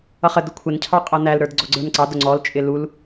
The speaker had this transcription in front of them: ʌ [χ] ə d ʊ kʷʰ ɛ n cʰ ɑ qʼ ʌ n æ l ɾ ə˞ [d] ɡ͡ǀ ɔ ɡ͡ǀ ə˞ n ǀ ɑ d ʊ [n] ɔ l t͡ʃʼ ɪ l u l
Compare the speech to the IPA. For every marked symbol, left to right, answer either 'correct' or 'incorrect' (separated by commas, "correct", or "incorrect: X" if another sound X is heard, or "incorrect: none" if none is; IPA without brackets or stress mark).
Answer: correct, correct, incorrect: ŋ͡ǀ